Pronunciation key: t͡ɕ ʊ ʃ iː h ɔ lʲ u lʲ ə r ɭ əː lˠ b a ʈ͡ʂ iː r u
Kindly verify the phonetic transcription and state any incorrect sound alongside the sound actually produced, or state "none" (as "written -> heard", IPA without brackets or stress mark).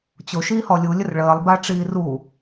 none